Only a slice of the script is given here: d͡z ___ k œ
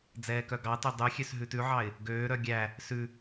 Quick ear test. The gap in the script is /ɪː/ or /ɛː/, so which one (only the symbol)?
ɛː